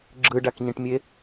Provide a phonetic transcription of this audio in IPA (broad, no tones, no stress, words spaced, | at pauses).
ɡ͡ǁɯɖakɲĩʈmʲe